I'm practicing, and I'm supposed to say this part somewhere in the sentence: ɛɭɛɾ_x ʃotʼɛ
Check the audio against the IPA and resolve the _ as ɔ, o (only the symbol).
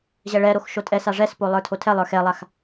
o